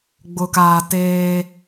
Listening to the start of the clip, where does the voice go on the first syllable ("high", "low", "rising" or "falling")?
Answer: low